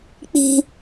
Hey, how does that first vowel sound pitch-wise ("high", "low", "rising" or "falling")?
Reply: high